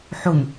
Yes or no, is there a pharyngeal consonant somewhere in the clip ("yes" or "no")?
yes